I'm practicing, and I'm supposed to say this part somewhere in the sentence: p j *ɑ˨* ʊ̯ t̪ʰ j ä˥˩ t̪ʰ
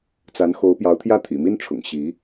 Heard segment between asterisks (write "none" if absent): ɑ˧˥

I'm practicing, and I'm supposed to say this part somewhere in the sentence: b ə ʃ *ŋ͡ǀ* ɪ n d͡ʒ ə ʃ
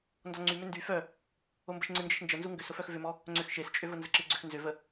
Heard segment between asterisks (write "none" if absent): ŋ͡ǀ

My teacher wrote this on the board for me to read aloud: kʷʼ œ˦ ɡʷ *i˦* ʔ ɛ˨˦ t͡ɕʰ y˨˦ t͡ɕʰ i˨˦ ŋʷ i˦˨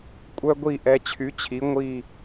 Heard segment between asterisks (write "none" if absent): i˦˨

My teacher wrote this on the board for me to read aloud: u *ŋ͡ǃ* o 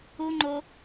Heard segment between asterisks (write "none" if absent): ŋ͡ǃ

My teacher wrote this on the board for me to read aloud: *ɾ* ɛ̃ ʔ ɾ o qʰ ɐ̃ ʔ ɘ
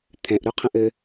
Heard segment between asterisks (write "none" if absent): t̪ʰ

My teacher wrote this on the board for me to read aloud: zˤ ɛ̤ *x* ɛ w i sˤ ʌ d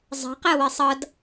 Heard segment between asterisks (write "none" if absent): q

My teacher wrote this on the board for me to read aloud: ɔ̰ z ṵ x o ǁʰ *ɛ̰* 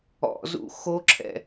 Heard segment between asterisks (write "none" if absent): ɛ̰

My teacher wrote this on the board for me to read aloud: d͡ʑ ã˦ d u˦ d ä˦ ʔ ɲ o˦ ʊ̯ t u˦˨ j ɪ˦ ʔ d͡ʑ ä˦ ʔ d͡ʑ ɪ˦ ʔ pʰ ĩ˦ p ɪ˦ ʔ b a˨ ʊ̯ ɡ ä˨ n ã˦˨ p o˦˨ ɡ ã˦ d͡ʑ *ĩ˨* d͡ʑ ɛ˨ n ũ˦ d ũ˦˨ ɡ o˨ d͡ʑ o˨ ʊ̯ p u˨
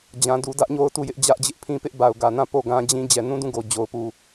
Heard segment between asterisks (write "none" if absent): ĩ˦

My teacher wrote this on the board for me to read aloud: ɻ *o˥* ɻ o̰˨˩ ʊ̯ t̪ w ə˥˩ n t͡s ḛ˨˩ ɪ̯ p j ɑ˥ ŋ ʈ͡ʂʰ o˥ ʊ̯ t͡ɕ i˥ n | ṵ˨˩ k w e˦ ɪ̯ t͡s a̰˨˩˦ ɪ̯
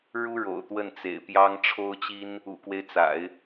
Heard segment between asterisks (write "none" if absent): u˥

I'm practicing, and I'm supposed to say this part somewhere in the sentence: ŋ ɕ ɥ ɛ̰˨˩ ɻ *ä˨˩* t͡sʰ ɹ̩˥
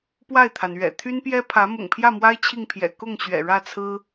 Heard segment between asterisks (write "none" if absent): ä˥˩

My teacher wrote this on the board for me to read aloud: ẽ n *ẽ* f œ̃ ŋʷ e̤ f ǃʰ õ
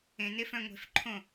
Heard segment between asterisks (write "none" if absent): e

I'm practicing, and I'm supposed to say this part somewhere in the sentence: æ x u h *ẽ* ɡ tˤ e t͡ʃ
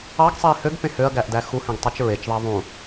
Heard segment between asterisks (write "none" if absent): ẽ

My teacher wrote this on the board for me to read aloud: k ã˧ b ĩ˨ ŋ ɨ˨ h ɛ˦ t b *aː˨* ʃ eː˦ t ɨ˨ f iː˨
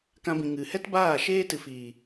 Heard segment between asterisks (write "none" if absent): aː˦˨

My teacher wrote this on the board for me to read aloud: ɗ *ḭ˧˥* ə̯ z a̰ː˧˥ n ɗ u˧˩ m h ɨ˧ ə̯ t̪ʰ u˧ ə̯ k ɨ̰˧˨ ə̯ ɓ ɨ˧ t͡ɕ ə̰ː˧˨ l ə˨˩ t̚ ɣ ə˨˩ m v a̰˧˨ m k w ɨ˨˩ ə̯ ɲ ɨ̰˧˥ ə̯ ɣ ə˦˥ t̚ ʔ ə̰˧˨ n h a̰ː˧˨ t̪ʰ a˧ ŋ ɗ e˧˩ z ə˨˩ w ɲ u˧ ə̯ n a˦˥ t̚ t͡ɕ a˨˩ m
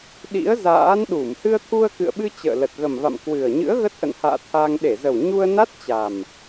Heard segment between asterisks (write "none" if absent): ḭ˧˥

